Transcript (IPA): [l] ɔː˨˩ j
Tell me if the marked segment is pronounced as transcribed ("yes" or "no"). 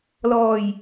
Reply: yes